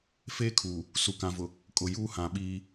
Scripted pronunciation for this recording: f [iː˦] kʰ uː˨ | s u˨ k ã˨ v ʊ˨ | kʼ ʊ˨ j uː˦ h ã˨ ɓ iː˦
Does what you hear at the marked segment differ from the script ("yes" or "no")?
yes